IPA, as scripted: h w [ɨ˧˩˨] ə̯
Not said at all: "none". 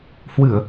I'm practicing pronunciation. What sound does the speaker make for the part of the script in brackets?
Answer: ɨ˧˩˨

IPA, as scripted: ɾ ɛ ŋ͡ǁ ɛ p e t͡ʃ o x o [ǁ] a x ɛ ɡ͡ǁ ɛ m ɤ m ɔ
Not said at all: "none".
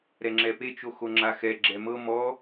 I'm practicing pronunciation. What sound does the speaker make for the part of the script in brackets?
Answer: ŋ͡ǁ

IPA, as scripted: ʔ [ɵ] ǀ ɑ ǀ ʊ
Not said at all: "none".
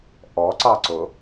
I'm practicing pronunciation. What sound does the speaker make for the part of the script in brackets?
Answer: ɔ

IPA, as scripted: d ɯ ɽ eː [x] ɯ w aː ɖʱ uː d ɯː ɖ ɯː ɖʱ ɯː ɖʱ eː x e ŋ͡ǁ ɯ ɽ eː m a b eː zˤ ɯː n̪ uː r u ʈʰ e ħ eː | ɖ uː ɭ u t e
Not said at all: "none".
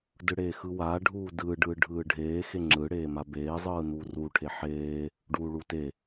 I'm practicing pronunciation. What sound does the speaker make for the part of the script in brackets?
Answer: x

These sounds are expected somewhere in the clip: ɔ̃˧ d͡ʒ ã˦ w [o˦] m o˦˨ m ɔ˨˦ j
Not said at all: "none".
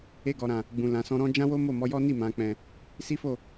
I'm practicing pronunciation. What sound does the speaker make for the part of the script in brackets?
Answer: o˦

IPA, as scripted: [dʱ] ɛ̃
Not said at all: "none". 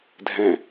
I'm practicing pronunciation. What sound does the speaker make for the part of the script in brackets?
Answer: dʱ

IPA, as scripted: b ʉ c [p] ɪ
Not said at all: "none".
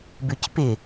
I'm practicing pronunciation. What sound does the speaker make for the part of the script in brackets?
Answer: p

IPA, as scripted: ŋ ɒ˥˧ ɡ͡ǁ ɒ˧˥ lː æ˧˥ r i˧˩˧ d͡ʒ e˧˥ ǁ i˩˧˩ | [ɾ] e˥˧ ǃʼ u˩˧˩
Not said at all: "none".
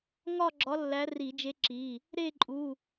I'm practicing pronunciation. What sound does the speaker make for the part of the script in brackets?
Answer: ɾ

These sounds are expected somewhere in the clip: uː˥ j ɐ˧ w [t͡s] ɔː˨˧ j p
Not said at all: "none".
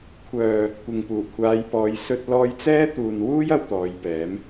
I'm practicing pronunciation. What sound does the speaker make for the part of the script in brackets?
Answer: t̪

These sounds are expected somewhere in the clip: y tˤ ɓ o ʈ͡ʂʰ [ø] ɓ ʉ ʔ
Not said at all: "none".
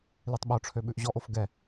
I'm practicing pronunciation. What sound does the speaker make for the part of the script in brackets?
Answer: ø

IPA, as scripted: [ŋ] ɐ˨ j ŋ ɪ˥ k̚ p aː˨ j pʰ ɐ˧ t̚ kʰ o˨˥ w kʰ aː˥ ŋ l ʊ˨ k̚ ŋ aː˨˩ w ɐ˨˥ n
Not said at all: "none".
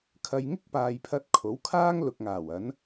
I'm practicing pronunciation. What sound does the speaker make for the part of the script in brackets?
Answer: kʰ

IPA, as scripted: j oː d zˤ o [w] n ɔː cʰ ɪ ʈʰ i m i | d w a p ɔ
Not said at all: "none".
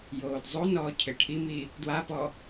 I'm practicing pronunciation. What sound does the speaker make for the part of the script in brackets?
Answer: none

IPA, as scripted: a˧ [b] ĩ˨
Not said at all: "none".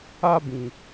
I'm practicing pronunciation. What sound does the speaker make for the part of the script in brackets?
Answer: b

